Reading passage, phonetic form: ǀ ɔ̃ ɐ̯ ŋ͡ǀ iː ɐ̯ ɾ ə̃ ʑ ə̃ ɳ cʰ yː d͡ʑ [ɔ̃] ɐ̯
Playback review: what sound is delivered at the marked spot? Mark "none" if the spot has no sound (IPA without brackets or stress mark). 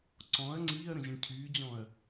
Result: ɔ̃